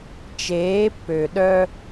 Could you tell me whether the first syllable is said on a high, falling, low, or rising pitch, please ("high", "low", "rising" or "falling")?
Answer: rising